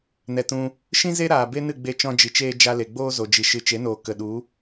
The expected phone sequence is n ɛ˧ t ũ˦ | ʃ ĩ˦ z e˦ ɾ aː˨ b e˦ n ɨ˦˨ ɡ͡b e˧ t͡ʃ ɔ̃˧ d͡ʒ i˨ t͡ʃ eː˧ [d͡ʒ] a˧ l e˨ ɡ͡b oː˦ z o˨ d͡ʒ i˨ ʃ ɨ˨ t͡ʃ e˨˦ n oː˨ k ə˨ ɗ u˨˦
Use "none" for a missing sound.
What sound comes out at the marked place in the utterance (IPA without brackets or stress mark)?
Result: d͡ʒ